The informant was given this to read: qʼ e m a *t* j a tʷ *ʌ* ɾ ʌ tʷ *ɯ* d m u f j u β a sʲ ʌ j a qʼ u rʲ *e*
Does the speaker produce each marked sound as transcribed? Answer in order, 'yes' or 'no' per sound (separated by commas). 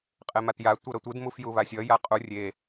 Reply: yes, yes, yes, yes